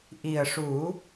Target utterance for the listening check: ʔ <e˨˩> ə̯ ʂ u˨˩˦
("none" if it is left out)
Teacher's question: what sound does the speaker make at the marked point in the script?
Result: i˨˩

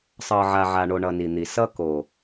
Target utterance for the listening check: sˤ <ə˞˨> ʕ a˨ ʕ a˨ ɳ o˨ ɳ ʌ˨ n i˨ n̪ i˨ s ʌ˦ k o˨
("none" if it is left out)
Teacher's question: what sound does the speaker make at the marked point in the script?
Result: ɤ˨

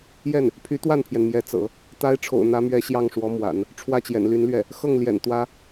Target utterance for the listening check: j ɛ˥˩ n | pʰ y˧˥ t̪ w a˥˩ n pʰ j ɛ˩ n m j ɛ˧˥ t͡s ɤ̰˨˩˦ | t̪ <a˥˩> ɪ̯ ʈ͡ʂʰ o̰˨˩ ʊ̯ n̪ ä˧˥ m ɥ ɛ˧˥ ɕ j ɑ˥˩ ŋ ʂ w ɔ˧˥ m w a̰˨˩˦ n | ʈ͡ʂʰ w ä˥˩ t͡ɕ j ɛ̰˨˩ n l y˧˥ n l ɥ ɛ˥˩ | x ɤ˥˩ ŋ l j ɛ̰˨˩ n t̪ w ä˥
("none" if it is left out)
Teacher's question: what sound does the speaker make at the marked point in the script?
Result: a˧˥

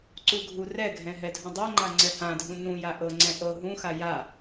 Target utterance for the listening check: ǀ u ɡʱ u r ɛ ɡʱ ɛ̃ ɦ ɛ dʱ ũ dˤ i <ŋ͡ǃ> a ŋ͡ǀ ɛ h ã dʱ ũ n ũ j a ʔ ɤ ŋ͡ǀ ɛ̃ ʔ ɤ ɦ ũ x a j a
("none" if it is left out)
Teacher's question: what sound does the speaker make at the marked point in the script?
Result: ŋ͡ǃ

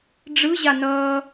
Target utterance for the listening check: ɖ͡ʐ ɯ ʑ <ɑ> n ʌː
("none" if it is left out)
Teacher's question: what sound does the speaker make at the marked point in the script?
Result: a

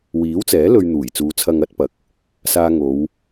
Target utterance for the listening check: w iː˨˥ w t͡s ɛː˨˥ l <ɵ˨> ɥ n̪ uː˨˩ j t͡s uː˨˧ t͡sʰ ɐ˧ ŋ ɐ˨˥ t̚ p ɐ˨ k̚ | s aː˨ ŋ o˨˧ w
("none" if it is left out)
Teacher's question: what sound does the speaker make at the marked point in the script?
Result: ɵ˧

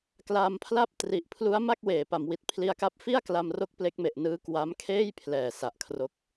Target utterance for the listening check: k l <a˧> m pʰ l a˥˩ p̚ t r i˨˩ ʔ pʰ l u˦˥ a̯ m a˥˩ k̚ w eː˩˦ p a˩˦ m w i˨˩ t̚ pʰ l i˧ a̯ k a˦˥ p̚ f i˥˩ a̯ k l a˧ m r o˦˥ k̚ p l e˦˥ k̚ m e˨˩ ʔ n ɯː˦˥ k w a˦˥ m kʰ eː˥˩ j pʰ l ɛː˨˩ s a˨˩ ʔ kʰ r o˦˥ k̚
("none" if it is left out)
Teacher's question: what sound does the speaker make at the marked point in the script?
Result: a˧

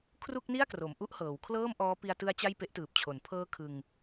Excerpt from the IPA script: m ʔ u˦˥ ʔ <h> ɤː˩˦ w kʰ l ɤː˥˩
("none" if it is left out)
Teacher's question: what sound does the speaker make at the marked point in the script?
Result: h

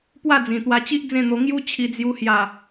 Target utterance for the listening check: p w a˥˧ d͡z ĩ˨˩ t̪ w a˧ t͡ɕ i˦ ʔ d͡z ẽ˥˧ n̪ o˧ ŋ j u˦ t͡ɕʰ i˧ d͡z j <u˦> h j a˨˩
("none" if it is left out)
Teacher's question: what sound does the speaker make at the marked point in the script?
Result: u˧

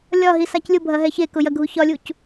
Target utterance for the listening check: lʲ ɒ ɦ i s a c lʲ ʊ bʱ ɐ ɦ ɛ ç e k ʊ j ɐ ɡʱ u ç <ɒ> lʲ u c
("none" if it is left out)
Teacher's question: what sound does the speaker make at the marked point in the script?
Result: ɒ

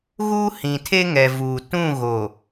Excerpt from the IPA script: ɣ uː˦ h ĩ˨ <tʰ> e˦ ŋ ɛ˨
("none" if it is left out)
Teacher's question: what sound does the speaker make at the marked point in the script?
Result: tʰ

